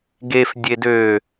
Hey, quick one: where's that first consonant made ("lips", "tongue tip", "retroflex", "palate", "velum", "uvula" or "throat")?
velum